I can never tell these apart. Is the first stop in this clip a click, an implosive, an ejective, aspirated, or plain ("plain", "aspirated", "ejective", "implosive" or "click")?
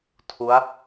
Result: aspirated